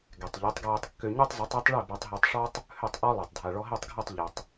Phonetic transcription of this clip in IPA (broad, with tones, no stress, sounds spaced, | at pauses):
ɡ ɛ˩ tˤ ʎ i˩˥ tˤ ɡ ɹ e˧ tˤ kː ø˧ ɲ ø˥ tˤ zˤ u˩˥ tˤ i˩˥ tˤ ɭ e˥˩ b œ˧ tˤ ɦ ɛ˧ tˤ ʂ ɔ˥ tˤ | h ø˥˩ tˤ ʔ ɔ˥ lˠ e˩ tˤ dʱ a˩ ɭ ɔ˧ ɦ e˥˩ tˤ ɡʱ œ˥˩ tˤ ʎ u˩ tˤ